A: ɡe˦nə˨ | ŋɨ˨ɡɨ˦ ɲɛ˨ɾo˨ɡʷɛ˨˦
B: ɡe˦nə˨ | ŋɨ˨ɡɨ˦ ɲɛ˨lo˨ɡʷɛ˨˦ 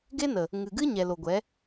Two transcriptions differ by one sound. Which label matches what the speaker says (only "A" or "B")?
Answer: B